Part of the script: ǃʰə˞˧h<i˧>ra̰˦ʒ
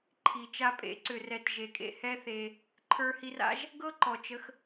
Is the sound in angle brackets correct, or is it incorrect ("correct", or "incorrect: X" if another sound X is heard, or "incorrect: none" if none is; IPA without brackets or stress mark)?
correct